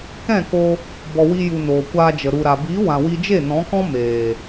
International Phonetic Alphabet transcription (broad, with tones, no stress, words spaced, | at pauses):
kɛ̃˦˨ko˧ | bɔ˨ wi˧ju˨ noː˨kʷaː˧d͡ʒə˨ ɾu˨ɾa˨ biː˨˦wã˨wi˧d͡ʒe˦˨ nɔ̃˨˦kɔ̃˦ meː˨